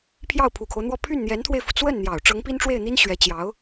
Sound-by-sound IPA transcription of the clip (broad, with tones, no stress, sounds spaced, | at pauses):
pʰ j ɑ˥˩ ʊ̯ pʰ u˨˩ kʰ o˦ ʊ̯ n̪ w ɔ˥˧ pʰ y˥˩ n n̪ j ɛ˧˥ n t̪ʰ w e˧ ɪ̯ f u˩ t͡s w ə˥˩ n n̪ j ɑ˨˩ ʊ̯ ʈ͡ʂ ɤ˧˥ ŋ p i˥ n ʈ͡ʂ w e˥˩ ɪ̯ n̪ i˥ n ɕ ɥ ɛ˧˥ t͡ɕ j ɑ˧˥ ʊ̯